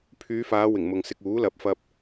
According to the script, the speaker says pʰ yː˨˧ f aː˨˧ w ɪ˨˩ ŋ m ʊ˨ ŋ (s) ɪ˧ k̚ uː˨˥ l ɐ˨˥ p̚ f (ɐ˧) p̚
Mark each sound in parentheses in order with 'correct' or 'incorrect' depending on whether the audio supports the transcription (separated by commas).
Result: correct, correct